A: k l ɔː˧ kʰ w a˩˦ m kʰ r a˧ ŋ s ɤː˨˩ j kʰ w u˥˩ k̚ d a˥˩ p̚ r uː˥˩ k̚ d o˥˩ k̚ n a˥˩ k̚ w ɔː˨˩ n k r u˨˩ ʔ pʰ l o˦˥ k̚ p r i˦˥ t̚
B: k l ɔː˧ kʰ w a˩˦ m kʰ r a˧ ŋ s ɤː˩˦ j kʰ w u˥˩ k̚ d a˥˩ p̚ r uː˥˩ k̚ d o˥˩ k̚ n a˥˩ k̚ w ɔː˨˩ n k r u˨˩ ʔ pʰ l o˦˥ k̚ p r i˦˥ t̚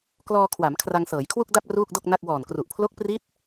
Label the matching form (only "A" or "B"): B